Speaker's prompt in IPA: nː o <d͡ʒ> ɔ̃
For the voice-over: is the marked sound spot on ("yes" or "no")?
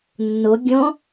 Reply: no